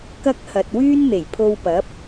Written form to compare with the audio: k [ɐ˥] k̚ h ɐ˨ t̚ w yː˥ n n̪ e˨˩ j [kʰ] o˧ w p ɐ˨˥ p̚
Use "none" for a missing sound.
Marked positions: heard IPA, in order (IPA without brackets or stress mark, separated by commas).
ɐ˥, pʰ